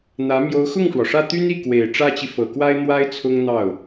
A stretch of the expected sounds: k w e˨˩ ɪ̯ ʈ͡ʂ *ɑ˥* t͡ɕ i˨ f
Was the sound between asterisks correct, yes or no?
no